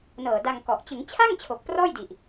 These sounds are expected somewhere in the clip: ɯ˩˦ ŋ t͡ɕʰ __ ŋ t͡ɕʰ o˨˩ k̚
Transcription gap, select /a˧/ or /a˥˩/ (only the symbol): a˥˩